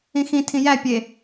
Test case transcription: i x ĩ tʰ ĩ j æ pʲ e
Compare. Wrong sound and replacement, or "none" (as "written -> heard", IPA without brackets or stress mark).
i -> ĩ